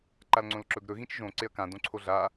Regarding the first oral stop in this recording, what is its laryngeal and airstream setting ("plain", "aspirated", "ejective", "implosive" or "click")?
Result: click